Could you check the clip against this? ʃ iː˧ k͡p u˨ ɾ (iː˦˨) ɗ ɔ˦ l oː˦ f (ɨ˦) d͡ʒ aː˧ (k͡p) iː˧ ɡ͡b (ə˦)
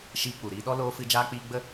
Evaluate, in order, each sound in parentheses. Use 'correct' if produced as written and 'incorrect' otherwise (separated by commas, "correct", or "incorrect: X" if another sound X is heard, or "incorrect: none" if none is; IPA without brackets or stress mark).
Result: incorrect: iː˧, incorrect: ɨ˧, correct, correct